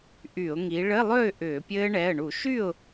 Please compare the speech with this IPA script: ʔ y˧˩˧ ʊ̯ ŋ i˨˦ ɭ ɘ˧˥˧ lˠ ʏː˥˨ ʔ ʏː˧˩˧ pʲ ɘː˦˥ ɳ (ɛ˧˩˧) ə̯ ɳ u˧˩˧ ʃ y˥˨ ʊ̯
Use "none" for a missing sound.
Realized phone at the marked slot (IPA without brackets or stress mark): ɛ˩˧˩